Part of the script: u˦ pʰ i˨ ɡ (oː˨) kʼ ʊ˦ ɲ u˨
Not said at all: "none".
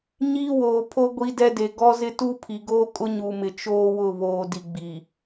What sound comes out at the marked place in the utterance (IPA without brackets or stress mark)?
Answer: oː˦